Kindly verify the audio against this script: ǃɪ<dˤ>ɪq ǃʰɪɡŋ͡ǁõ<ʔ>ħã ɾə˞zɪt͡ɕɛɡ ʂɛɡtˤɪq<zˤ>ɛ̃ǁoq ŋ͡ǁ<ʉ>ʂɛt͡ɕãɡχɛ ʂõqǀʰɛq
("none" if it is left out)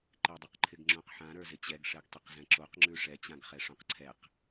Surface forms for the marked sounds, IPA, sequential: dˤ, q, z, ʉ

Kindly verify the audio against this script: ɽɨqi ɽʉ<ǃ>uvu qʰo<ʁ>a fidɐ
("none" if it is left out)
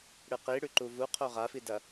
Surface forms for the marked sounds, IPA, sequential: ǃ, ʁ

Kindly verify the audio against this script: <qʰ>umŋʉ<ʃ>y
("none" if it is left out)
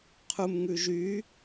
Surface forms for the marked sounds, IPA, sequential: qʰ, ʒ

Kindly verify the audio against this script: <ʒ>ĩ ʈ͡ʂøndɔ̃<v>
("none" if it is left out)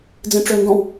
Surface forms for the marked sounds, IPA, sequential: d͡z, w

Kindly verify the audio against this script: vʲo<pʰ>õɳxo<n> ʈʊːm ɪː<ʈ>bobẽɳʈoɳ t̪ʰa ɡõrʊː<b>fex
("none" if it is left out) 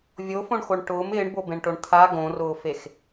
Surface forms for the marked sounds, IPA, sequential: f, ɳ, ɳ, none

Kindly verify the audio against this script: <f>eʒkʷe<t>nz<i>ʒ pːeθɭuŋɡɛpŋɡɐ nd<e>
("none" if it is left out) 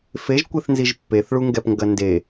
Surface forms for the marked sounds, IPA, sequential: f, θ, i, e

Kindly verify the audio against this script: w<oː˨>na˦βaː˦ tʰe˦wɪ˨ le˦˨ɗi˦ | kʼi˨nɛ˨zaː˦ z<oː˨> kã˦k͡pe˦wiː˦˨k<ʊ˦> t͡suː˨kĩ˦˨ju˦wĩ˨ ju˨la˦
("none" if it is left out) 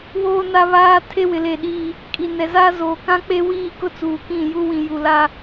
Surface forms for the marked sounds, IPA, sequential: oː˦, oː˨, ʊ˦

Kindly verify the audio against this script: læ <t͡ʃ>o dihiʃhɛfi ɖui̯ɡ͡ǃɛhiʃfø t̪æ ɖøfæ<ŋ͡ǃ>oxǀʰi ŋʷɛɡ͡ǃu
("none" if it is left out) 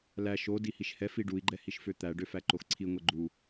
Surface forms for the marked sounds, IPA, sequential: ʃ, ǃ

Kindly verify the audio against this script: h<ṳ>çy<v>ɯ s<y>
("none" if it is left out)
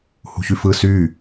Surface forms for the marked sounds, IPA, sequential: ṳ, f, y

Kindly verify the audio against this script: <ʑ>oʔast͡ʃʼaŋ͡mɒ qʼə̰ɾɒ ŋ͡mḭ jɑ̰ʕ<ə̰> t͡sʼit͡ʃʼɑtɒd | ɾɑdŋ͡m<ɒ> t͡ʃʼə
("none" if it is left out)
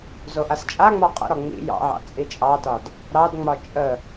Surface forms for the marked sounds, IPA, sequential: z, ɑ̰, ɒ

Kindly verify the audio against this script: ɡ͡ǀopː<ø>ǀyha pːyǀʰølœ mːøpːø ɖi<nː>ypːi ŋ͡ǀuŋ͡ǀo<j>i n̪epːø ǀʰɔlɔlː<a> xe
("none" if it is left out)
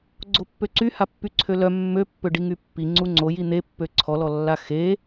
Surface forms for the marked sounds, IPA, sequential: ø, ŋ, j, a

